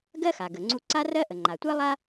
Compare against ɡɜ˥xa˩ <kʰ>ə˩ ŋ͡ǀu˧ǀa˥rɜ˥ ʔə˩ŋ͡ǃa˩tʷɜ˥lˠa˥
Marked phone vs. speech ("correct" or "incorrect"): incorrect